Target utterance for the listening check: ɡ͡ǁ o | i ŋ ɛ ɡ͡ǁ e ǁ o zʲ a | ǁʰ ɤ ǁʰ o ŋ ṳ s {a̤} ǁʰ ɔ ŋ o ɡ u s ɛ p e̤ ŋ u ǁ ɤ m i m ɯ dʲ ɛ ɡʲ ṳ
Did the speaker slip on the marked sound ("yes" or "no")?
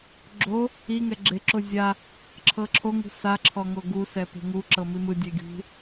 yes